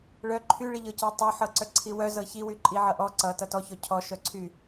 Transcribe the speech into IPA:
ɭ œ ǃʰ y ɭ i ʎ ɤ c ɤ tˤ œ ħ ɤ ǀ œ ǀʰ i w œ z ɤ ç i w y ǃʼ i ʕ ʌ ʔ ɔ ǀ ʌ t ʌ t ɔ ç ɔ cʰ ɔ ʃ œ ǀʰ y

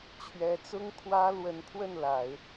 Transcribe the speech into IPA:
t͡ɕʰ ɥ ɛ˧˥ t͡s ʊ˥ ŋ kʰ w ä˥ l w ə˧˥ n pʰ w ə˥˩ n l a˨˩˦ ɪ̯

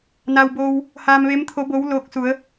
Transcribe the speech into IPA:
n a˧ w b oː˧ w | h aː˧ m ʋ e˧˥ m t̪ʰ o˧˥ b o˧˥ w l oː˧˥ k̚ s u˩˧ ə̯

